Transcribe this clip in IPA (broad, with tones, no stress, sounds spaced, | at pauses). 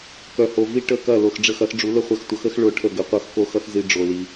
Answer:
k œ˨ h o˨ v i˦ ʈ ə˦˨ k ɐ˦˨ l o˨ x ɖ͡ʐ ə˦˨ x ɐ˦ x ɖ͡ʐ u˨˥ l ə˦˨ χʷ ɐ˦˨ x tʷ ʌ˨˥ x ə˨˥ x ɭ o˦˨ ʈʰ ə˦˨ ɡ ə˨ qʷ ʌ˦˨ x k o˦˨ x ʌ˦ x z i˦ ɖ͡ʐ o˨ l i˨